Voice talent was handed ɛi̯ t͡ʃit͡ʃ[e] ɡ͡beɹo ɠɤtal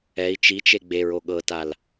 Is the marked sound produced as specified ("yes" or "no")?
yes